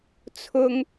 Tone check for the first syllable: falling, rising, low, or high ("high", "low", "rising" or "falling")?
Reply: high